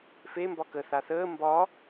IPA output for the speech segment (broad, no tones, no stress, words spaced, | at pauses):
fe mbɒkə θaθəː mbɒ